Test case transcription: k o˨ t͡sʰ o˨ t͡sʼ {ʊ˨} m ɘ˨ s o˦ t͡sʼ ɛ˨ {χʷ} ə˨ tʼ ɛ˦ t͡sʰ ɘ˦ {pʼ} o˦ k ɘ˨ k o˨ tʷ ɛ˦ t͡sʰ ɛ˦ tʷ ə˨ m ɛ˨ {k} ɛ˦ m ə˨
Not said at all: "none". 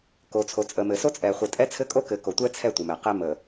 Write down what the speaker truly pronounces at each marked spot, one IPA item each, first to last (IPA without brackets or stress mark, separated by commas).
ə˨, χʷ, kʼ, q